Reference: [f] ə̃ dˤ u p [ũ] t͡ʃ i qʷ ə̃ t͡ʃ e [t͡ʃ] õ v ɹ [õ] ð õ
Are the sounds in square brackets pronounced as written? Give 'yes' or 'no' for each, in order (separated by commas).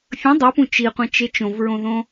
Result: no, yes, yes, yes